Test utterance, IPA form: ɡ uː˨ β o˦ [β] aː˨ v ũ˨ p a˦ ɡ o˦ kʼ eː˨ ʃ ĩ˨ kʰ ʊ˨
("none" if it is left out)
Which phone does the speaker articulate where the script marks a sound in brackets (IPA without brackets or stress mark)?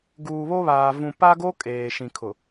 β